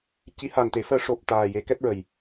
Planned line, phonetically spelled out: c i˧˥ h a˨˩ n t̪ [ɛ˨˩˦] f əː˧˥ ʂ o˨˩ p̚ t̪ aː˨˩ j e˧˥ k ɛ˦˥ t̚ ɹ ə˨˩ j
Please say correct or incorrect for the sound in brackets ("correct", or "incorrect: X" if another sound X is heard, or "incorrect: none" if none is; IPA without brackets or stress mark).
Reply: incorrect: e˨˩˦